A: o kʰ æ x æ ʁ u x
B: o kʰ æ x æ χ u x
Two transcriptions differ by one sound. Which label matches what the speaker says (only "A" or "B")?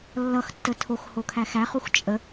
B